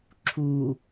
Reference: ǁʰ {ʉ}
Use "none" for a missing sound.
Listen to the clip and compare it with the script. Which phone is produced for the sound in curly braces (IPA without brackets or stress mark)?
u